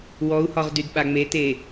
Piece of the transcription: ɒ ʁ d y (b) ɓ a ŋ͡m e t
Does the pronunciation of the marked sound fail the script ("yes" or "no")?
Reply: yes